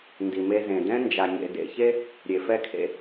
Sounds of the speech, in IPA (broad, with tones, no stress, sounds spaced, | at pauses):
n d i˩ m e˧ z ẽ˩ d ɛ̃˥ n d͡ʒ a˩ ɲ ḛ˩ d ḛ˧ ç e˥ | ɾʲ e˩ f ɛ˥ kʰ ḛ˧